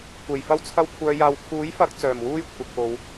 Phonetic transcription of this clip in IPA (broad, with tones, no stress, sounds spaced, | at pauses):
kʷ e˨˩ j f ɐ˥ w t͡sʰ ɐ˥ w kʷʰ œː˧ j aː˨ w kʰ uː˨˥ j f ɐ˧ k̚ t͡s œː˨˩ m w uː˥ j kʷʰ ɐ˨ k̚ p o˨˧ w